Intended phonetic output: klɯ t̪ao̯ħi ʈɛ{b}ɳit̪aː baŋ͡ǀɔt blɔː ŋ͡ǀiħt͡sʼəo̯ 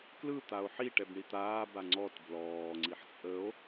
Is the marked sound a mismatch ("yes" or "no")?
no